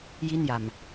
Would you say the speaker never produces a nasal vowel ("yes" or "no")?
yes